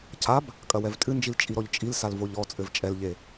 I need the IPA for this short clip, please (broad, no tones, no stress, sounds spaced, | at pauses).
cʰ a b | kʼ ɐ w ɛ v tʼ ɨ n d͡ʒ i l t͡ʃʼ i ɾ ɔ ʎ t͡ʃʼ i l s a l v o ʎ ɔ t͡sʼ ɘ v t͡ʃʼ ɛ l ʎ e